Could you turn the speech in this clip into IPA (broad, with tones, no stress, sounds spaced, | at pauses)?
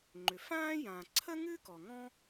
ŋ͡ǃ ʏ˩ f ãː˥ j ã˩ ǀʰ ə˥ ŋ ɨ˥ k ɔ˩ ŋ ɔ̃˥